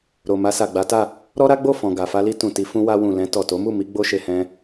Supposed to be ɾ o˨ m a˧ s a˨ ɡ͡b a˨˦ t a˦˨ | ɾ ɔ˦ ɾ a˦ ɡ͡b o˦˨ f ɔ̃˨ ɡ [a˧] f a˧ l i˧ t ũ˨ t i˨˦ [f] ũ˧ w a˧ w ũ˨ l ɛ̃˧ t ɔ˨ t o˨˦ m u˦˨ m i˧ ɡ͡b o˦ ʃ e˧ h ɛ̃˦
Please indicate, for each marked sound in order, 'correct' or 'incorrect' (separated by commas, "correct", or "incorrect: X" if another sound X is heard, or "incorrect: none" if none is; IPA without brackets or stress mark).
incorrect: a˨, correct